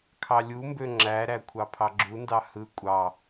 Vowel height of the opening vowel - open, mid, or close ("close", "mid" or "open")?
open